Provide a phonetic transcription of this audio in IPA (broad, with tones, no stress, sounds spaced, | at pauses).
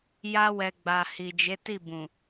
j a˧ w ɛ˨ ɡ͡b a˨ h i˨ d͡ʒ e˨˦ t i˦˨ b ũ˨